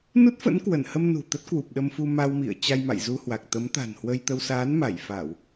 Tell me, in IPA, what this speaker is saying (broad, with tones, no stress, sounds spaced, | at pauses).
n u˦˥ t̚ f ə̰˧˥ n k w ə˧˩ n h ə˧ m n ṳ˨˩ t̪ ə˦˥ t̚ k w u˨˩ p̚ ɗ ə˧ m f u˧ m a˧ w m ḭ˧˨ ə̯ t͡ɕ a˧ j m a̰˧˨ j z u˧ h w a˨˩ k̚ t̪ ə˨˦ m t̪ a̤˨˩ n h w ə˧ j t̪ ə˧ w s aː˨˦ n m a˧˩ j f a˧˩˨ w